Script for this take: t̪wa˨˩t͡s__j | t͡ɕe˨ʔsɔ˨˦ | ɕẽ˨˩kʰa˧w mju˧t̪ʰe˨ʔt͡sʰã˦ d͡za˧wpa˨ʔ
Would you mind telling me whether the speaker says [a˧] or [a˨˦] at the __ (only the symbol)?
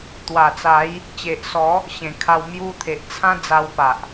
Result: a˨˦